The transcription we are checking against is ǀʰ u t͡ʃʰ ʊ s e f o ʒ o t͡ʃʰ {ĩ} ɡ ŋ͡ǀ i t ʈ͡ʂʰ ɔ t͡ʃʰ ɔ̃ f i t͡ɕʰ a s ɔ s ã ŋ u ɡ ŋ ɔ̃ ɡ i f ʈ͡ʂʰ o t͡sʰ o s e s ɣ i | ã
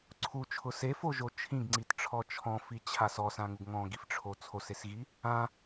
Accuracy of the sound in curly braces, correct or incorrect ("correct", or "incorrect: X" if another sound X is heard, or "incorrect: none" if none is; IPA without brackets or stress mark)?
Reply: correct